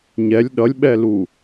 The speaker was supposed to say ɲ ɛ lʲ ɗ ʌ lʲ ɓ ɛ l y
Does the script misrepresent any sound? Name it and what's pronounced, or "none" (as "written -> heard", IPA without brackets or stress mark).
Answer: y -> u